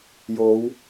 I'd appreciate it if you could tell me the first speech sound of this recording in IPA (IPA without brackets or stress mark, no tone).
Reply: j